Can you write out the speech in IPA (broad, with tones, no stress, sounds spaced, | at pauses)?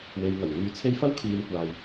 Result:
w e˨ j ŋ ɐ˨˩ w ŋ yː˧ t͡sʰ e˥ j f ɐ˥ w kʰ iː˨˧ m kʷ aː˨ j